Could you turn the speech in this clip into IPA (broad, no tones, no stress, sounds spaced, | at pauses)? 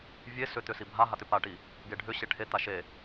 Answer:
vʲ e s ʏ t̪ ʏ s i bʱ a ɦ a t̪ ʏ p a ʈ i | ɡ e ɖʱ ʏ ɕ e ʈʰ e t̪ a ʃ e